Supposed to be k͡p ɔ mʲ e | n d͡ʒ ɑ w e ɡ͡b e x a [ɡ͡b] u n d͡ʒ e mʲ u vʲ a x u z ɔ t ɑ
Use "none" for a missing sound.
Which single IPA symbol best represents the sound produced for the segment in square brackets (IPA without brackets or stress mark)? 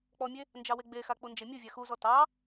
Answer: k͡p